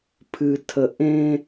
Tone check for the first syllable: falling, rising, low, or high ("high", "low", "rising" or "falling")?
low